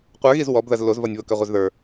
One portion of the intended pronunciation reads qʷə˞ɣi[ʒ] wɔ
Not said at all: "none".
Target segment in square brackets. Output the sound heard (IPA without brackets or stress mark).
z